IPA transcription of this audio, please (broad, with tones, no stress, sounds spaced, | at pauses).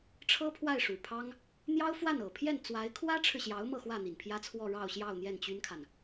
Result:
ʈ͡ʂʰ ɤ˥ pʰ w a˥˩ ɪ̯ ʂ u˨˩ pʰ ɑ˥ ŋ | n̪ j ɑ˥ ʊ̯ f w a˥˩ n ɤ˨˩ pʰ j ɛ˥˩ n t͡s w a˧˥ ɪ̯ kʰ w ä˥ ʈ͡ʂʰ ɻ̩˨ ɕ j ɑ˧˥ ʊ̯ m ɤ˥˧ x w ä˥˩ n̪ i˨˩ n pʰ j ä˥ t͡sʰ w ɔ˥˧ ɻ ɑ˥˧ ʊ̯ ɕ j ɑ˥˧ ʊ̯ n̪ j ɛ˥˩ n t͡ɕ y˥ n kʰ a˨ n